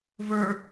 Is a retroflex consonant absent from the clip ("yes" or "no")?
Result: yes